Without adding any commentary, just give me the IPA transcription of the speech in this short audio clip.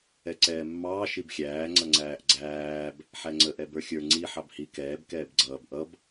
ɛ ǀ ɛː mː ɑː ʃ i b xʲ æː ŋ͡ǀ ʌ ŋ͡ǀ æː ʔ ɡ͡ǀ æː b | ħ æ ŋ͡ǀ ə ʔ ɛ b ə˞ xʲ ə˞ ŋ͡ǀ i ħ ɑ b h i k ɛː b k ɛː b ɡ͡ǀ ʌː b ʔ ʌ b

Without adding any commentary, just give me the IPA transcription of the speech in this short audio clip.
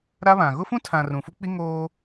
ɾ a˦ β ã˨ ɣ ʊ˦ f ũ˦ tʰ ã˨ r ũ˨ f u˦ k͡p i˦ ŋ oː˦

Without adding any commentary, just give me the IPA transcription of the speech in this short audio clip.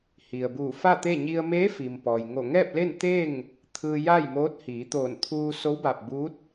h i˩ ə̯ b uː˧˩ f a˥˨ t̪ e˥˨ ɲ i˧ ə̯ m eː˧˥ f i˩ m p ɔː˩ j ŋ o˧˩ ŋ ɛː˥˨ p̚ l e˥˨ n t̪ e˥˨ ŋ | t̪ʰ ɯː˧ j a˥˨ j m oː˧˥ t̚ h iː˩˧ t̪ oː˧˩ n t̪ʰ uː˧ s o˧˥ w b a˧˩ p̚ b uː˧˥ t̚

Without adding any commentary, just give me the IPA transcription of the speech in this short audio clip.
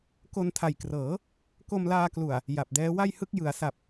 k o˧ n tʰ a˨˩ j k r ɤː˩˦ | k o˧ m l aː˧ k l u˨˩ a̯ | j a˨˩ p̚ d ɛː˦˥ w a˥˩ j h ɯ˥˩ k̚ j ɯ˩˦ a̯ s a˨˩ p̚

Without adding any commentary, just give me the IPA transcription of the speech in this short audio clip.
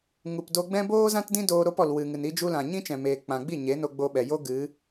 ŋ u˨ p d o˧ ɡ͡b ɛ̃˦ b oː˦ z ã˦ t d ĩ˦ d oː˧ ɾ o˧ p ɔ˨ l w ɨ˨ ŋ ɨ˨ n i˧ d͡ʒ u˧ l ã˨ ɲ ĩ˦ t͡ʃ ɛ̃˨ m eː˨ k͡p ã˨ ɡ͡b i˦˨ ɲ e˨˦ n o˧ ɡ͡b o˧ ɓ ɛ˨ j o˦ ɡ ɨ˨˦

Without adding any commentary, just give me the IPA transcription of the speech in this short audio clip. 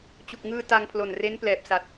t͡ɕ u˨˩ k̚ ŋ ɯː˧ t a˧ ŋ pʰ l o˨˩ n r e˦˥ n p l ɛː˨˩ p̚ s a˨˩ t̚

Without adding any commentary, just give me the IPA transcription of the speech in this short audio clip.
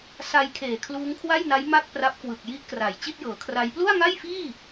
s a˧ j kʰ eː˨˩ kʰ l uː˦˥ ŋ kʰ w a˥˩ j n a˦˥ j m a˥˩ k̚ p r a˦˥ p̚ k w ɯ˨˩ k̚ j i˦˥ ʔ k r a˨˩ j t͡ɕ i˥˩ t̚ j ɤː˩˦ kʰ r a˦˥ j p l u˥˩ a̯ ŋ a˥˩ j f iː˥˩

